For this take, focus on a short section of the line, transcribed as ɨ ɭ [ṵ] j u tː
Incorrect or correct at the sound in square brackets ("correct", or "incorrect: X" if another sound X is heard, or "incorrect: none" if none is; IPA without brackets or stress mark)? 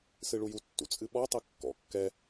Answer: incorrect: u